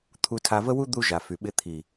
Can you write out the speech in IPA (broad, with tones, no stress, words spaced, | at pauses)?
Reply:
t̪ʰu˧tʰa˧və˦wu˦ d̪u˦ʒa˨fy˨ ɓɪ˧t̪ʰi˨